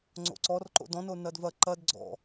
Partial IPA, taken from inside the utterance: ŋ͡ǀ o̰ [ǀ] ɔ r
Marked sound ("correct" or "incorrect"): correct